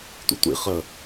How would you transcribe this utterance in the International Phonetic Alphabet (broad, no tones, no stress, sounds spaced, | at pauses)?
tʷ ḭ tʷ ḭ χ ə